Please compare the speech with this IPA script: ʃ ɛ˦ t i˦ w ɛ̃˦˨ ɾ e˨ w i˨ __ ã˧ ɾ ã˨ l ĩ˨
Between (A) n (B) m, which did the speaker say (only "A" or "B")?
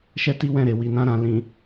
A